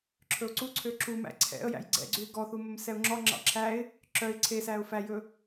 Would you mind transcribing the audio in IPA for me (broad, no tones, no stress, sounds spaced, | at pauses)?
ǁʰ ɵ ʊ̯ ǀ u ǀʰ ø ǁ u m æ̰ ǀʰ ɛ̰ ə̯ j æ̰ j ɡ͡ǀ ɛ̰ ɡ͡ǀ ʉ ɪ̯ ɡ ɔ θ u m ɵ m s ɛ ʊ̯ ŋ͡ǁ ɔ ŋ͡ǁ ɑ̰ ǁʰ æ ɪ̯ | ǁ œ ɪ̯ ǀʰ e s æ ʊ̯ f æ j ɵ